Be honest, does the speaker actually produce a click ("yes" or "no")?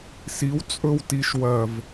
no